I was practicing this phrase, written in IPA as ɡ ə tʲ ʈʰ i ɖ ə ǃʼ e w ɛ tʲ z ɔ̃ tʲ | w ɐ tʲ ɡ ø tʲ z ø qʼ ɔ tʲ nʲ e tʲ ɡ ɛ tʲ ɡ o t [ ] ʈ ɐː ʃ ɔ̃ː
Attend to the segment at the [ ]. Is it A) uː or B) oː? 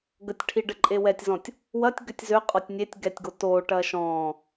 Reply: B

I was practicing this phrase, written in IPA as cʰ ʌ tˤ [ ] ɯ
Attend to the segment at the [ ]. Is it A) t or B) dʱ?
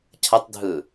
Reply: B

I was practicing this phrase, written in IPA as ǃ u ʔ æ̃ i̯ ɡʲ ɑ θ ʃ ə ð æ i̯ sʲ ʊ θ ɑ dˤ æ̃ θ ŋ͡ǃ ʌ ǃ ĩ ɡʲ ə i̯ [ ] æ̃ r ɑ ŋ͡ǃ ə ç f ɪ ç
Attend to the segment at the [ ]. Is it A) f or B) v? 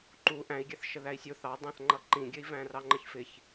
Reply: B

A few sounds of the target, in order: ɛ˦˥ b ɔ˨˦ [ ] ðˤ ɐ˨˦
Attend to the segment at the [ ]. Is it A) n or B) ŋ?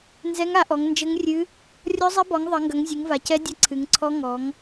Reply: B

